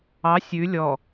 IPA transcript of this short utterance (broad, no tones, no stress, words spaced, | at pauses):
ɑ sʲʉ lʲɔ